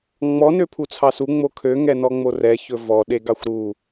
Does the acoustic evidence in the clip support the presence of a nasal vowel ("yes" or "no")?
no